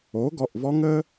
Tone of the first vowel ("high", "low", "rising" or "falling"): rising